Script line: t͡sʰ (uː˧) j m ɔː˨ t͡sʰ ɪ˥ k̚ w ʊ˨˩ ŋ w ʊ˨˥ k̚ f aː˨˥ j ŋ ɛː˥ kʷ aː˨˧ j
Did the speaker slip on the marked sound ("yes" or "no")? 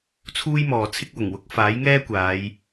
yes